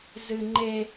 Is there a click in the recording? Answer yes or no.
yes